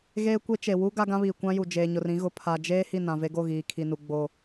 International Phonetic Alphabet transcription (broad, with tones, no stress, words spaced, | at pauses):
ɣeː˦kʷe˦ t͡ʃe˨ wu˦ ɡa˦ɡã˦βiː˨ kʷã˦ju˨ d͡ʒeː˨ɲʊ˨rĩ˦ɣʊ˨ pʰa˨d͡ʒeː˦ hi˦˨nã˨ve˦ɡo˦˨ ɣiː˨kʰi˨nu˨ ɡ͡bo˨